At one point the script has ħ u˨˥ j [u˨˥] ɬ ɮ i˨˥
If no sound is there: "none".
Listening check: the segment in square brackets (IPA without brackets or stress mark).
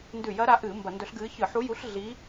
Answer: u˨˥